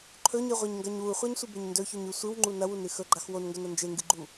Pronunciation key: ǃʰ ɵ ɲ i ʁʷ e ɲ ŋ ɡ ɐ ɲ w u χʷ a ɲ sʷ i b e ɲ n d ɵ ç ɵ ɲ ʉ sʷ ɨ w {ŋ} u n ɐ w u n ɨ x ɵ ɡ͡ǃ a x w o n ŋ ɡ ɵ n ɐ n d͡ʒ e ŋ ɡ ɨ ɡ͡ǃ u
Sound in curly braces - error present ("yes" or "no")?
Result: yes